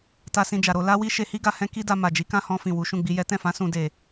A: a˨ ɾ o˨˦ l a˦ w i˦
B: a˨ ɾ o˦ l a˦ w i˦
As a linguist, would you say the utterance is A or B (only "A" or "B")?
A